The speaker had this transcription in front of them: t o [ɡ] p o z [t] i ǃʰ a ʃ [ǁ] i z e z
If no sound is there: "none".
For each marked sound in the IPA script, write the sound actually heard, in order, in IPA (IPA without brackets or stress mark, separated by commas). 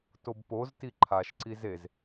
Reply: b, t, ǀ